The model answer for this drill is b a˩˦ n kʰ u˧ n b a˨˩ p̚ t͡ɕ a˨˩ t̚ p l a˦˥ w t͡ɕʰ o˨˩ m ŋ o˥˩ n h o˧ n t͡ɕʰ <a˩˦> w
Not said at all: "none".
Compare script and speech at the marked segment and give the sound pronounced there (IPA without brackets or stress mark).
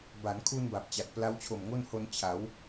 a˩˦